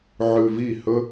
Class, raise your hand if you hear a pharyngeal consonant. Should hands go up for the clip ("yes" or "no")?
yes